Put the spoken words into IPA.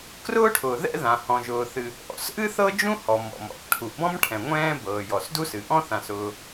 k r ʊː˥ ʈʰ ʊː˩ ð ɛ̰˥ ð ã˩ h ɔ̃˩ ʒ ʊː˩ θ ɨ˩ | ʔ ɔ̰˩ s ʔ ɨ˥ θ ɤ˥ d͡ʒ ũ˥ h ɔ˩ m ɔ̰˩ m ɔ̰˩ k ʈʰ u˩ ʔ b ɔ̃˥ m ʈʰ ɛ̃˩ ŋʷ ɛ̃ː˥ b ɤː˩ j ɔ˩ s d u˥ s ɨ˩ ʔ ɔ̃˥ θ ã˩ s ʊː˩

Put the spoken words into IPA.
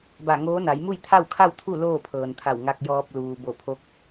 b a˧˩ ŋ oː˧˥ n a˩˧ j m u˥˨ j t̪ʰ a˥˨ w kʰ a˥˨ w t̪ʰ u˥˨ l oː˥˨ pʰ ɤː˩ n t̪ʰ a˧˩ w ŋ a˧ k̚ j ɔː˧ p̚ l uː˩ b o˧˩ pʰ o˧˥ k̚

